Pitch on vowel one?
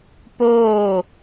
falling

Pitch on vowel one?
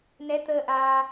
rising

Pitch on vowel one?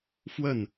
falling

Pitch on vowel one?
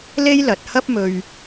high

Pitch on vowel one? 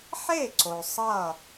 falling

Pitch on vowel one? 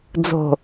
low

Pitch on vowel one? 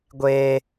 high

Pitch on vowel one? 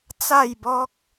falling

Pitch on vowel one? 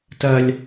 high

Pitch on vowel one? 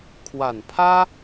low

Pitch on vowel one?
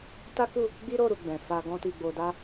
high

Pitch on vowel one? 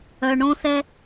low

